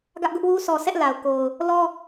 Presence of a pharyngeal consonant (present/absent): absent